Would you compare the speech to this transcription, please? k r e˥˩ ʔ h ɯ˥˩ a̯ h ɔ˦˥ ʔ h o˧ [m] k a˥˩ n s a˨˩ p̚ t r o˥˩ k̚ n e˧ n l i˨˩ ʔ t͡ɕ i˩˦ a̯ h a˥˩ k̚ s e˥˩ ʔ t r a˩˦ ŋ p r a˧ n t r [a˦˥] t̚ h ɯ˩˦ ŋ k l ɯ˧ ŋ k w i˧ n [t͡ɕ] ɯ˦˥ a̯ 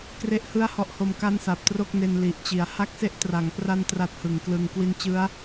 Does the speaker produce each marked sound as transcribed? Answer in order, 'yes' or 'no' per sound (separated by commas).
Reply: yes, yes, yes